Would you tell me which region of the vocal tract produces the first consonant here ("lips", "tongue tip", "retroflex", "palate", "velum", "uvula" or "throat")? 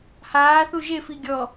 throat